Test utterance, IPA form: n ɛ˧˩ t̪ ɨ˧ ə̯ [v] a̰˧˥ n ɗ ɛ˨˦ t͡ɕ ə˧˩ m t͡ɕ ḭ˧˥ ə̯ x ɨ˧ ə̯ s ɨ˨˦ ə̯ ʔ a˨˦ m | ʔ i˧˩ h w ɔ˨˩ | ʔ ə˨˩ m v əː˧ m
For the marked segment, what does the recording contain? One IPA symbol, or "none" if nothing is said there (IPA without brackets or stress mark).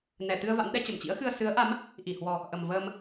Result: v